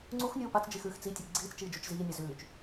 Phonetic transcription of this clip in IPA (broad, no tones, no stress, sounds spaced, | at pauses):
ŋ͡ǀ u x nʲ uː p a t͡s d͡ʒ i x ʉː x t͡s i tʲ e ɡ͡ǀ iː t͡s t͡ʃ iː d͡ʒ u t͡ʃ z iː nʲ ɜ z ʉː t͡ʃ